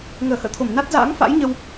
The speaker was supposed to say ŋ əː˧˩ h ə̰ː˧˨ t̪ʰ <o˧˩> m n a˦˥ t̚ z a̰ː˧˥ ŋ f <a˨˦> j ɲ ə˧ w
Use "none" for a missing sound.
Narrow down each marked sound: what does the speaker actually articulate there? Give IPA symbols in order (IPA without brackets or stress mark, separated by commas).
o˧˩, a̰˧˥